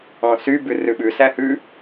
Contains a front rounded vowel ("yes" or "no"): yes